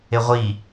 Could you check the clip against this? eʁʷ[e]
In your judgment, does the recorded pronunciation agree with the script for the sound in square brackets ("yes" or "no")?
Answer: no